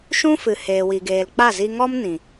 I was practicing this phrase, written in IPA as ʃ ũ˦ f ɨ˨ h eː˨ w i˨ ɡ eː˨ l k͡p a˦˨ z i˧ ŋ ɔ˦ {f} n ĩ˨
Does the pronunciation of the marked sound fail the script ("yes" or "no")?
yes